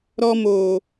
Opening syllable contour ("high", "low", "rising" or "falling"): high